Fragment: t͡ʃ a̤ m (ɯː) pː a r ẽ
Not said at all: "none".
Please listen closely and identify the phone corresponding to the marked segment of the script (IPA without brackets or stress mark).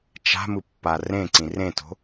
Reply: ɯ